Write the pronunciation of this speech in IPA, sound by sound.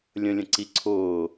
lʲ ə̃ lʲ ə̃ ǀ i ǀʰ ʊː

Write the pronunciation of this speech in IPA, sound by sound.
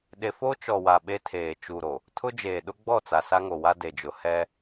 ɗ e˦ f o˦ t͡ʃ ɔ˨ w a˨ ɓ e˦ tʰ eː˨ t͡ʃ u˨ ɾ o˨ | tʰ ʊ˦ d͡ʒ eː˨ ɗ ʊ˦ ɡ͡b ɔ˦˨ t͡s a˨ s a˦ ŋ o˨ w a˦ d e˨ d͡ʒ ʊ˨ h ɛ˦

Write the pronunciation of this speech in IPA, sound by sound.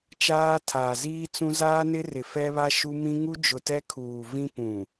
t͡ʃ aː˦ tʰ aː˨ z iː˦ t͡s ũ˦ z aː˦ n ɪ˦ r ɪ˨ f ɛ˦ β a˦ ʃ u˦ m ĩ˦ ŋ u˦ d͡ʒ ʊ˨ t ɛ˦ kʰ uː˨ v ĩ˦ p ũ˨

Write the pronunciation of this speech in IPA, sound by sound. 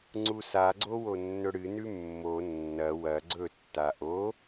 ŋ͡ǀ u s a ɡ͡ǀ o w o nː ɵ ɽ ɨ n ʉ mː o nː ɐ w ɐ ɡ͡ǀ ɵ tː a ʔ o

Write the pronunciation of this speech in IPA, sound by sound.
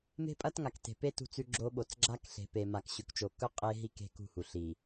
m e̤˦ pʼ ɐ˦ t ŋ a˨ k t e̤˨ p e˦ t ṳ˦ t͡s ʉ˦ ɡ͡ǁ o˦ ɓ o˨ t͡s ɡ͡ǁ a˦ k ɬ e̤˨ p e˨ m a˨ k ɕ ʉ˨ k t͡ʃ o˨ k ɵ˦ qʼ e˦ ɦ i˦ k e̤˦ k ṳ˦˨ h u˨ ɬ i˨

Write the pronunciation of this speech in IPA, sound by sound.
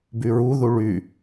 b y ɹ u ð u ɭ y

